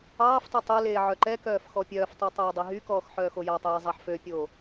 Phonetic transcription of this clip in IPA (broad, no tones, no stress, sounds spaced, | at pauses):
ɑː f tˤ œ tˤ e l eː ʕ œ ǃ ɛ k œː f x ɔ pʲ œː f tˤ ʉ tˤ oː dˤ e ɦ y k ɔː x ħ œː x o j ɑ tˤ eː j zˤ ɑ ħ f ø pʲ o